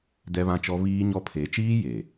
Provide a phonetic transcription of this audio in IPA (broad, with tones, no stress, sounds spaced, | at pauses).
d ɛ˦ β ã˦ t͡ʃ ɔ˦ β iː˦ ɲ ɔ˦ pʰ e˨˦ t͡ʃ iː˦ j e˨